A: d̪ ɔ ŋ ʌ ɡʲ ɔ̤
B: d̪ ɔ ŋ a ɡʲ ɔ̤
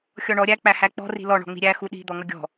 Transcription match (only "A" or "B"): A